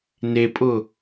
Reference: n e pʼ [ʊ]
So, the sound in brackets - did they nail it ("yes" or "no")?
yes